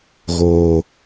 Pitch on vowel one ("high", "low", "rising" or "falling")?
high